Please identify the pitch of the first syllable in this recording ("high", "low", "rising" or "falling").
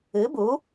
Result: rising